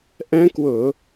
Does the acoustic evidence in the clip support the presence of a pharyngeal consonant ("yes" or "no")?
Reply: no